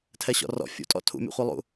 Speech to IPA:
tʰ ɛ ɕ ɔ̰ r ɔ̰ fʲ ṵ tʼ ɔ̰ tʰ ṵ mʲ o̰ χʷ ɯ lˠ ṵ

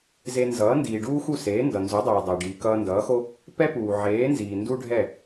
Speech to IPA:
z e˧ n z ʌː˩˥ n d iː˩ ɖ uː˥ x u˥˩ s eː˩˥ n d ʌ˩ n z u˩˥ dˤ eː˩ dˤ e˩ ɖ iː˩ k ʌː˧ n d ʌː˩˥ x o˥ | p ɛ˥ p uː˩ ʕ eː˩˥ n z iː˩ n d u˥ ɖʱ ɛ˥˩

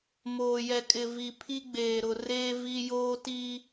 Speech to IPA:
m oː˨ j ɛ˨ kʼ ɪ˨ v i˨ pʰ i˦ ɡ͡b eː˨ ɾ ʊ˨ r eː˦ v i˦ j oː˦ t i˦

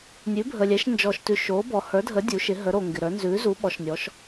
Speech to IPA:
nʲ ʉ˨˥ bʱ əː˨ lʲ ɛ˨˥ ʃ n d͡ʒ ɔː˨ ʃ t ʉ˨ ʃ oː˨˥ b ɔ˨ h ə˞˨˥ dʱ ə˨˥ dʲ u˨˥ ʃ ɪ˨˥ ɦ ə˨˥ ɾ o˨ ŋ ɡ ɪ˨ ɾ ə˞˨˥ n z ʉː˨˥ z u˨˥ ɓ ɔ˨˥ ʃ nʲ ɔ˨˥ ʃ

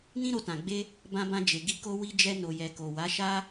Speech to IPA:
n ĩ˦ ɾ o˧ t ã˨ ɡ͡b e˧ | b ã˧ b ã˧ d͡ʒ e˨ ɡ i˧ k o˧ w i˧ d͡ʒ ɛ˧ n o˨ j ɛ˨ k o˨ w a˨˦ ʃ a˦

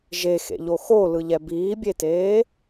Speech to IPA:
ʒ e x ḛ ʎ o x o l ɯ ʎ ɛ b iː bʲ e t eː

